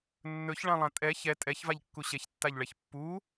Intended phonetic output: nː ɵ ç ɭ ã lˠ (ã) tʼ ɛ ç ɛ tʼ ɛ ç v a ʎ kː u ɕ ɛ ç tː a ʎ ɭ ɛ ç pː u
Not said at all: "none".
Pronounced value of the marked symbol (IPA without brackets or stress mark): ã